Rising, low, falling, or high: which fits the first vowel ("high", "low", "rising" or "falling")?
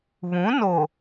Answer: rising